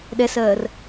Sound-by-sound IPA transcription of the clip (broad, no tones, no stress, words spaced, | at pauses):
ɗɛsɜːr